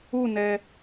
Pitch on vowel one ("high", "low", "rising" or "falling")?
falling